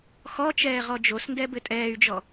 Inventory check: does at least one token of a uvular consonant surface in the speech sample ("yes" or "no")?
yes